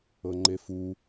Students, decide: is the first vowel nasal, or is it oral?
oral